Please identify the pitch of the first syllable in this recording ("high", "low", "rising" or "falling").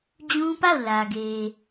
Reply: high